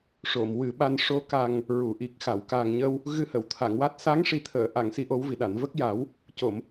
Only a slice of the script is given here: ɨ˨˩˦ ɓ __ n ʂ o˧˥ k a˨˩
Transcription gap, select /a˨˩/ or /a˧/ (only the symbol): a˧